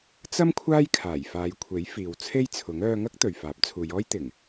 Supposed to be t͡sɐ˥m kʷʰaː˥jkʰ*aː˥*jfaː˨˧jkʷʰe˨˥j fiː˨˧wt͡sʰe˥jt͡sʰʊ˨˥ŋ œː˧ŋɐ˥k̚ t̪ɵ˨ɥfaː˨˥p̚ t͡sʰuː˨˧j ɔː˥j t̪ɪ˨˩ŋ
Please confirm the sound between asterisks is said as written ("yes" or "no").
no